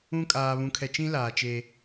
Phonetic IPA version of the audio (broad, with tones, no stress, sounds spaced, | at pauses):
ũ˦ kʼ aː˨ β ũ˨ kʰ ɛ˨ t͡ʃ ĩ˦ l aː˨ t͡ʃ e˦